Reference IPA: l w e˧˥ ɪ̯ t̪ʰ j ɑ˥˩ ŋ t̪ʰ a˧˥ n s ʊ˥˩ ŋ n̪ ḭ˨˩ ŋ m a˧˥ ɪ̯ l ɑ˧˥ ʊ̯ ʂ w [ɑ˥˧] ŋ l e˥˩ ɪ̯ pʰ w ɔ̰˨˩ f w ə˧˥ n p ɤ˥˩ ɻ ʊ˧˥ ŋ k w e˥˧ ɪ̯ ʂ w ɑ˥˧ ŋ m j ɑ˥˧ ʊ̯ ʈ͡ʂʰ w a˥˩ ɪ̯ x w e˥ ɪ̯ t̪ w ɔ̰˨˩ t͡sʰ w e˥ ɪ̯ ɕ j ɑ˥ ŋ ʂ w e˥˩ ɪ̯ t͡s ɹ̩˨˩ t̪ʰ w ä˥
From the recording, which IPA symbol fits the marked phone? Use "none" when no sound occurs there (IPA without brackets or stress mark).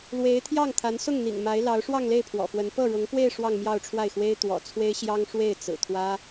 ɑ˥˧